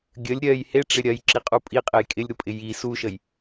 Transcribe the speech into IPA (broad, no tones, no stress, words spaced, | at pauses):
ɡʲəlʲ ɾʲɜj heʈ͡ʂɪ ɾʲɜjǁiqʼu pʼiqʼej kʼɪlʲɾupʼɪ ji suʃəj